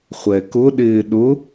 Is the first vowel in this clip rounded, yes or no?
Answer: no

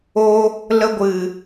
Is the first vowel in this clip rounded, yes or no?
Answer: yes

